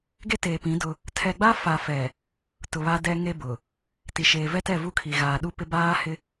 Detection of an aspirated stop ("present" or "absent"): present